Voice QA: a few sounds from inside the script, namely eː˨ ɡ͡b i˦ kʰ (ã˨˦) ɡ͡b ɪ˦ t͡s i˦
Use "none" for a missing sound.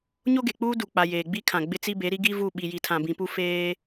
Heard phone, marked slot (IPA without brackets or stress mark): ã˨